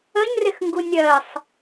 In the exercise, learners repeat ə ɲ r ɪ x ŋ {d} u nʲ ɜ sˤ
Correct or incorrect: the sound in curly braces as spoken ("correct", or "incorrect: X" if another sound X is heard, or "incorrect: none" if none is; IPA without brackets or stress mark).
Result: incorrect: ɡ